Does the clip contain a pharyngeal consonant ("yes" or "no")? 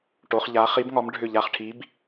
no